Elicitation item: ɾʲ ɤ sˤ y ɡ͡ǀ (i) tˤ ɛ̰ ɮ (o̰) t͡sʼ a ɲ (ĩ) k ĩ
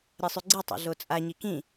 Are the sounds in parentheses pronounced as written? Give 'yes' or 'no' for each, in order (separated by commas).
yes, no, no